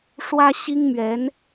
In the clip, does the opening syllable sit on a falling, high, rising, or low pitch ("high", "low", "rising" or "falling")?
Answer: high